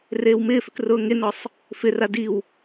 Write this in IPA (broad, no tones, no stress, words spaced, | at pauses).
reːwmɪːfʏk rʊːŋenɔsˤ | fɪra diw